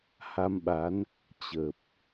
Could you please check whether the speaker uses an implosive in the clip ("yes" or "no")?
yes